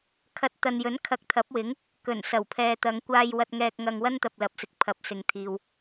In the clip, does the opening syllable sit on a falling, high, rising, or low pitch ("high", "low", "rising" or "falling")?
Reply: rising